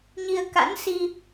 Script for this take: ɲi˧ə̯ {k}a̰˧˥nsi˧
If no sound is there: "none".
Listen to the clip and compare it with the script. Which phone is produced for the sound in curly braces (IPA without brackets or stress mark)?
k